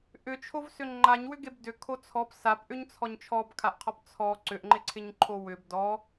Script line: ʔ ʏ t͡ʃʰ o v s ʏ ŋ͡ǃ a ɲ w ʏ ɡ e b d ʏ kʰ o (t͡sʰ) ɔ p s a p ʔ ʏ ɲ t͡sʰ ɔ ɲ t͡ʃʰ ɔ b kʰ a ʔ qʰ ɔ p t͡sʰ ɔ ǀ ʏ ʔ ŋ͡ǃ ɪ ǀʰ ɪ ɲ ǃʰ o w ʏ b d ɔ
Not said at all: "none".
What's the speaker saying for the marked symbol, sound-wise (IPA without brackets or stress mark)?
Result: t͡sʰ